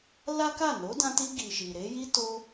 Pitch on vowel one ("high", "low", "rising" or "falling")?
high